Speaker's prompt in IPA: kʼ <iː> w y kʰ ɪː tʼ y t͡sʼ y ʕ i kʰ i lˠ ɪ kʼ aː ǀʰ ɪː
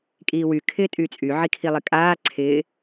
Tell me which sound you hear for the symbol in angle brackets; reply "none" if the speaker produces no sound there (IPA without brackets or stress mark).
iː